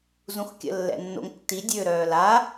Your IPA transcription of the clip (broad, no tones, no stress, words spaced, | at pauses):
zũxkʲə̰ lːɛ̰nːo̰ŋtːi dʲøːɾœːla